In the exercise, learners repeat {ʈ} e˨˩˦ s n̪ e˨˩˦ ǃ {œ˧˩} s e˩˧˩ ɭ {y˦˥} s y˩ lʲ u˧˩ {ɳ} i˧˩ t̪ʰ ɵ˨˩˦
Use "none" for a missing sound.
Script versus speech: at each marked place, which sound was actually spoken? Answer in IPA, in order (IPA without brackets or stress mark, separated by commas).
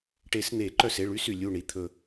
ʈ, œ˧˩, y˦˥, ɳ